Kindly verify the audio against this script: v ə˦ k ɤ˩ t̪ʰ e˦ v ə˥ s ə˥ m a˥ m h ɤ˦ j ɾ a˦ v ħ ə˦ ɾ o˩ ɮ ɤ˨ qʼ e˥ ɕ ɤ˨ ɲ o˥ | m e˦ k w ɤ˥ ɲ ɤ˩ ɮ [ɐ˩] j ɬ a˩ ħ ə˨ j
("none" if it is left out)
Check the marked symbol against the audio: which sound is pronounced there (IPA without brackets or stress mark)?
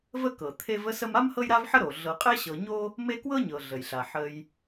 ə˩